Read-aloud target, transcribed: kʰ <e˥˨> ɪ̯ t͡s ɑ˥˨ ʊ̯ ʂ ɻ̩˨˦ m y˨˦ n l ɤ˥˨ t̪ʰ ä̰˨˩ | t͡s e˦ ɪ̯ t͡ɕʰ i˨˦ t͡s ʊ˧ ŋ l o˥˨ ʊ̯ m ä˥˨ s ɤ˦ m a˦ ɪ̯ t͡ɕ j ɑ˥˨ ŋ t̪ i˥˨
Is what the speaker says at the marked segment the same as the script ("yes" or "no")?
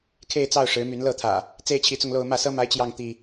yes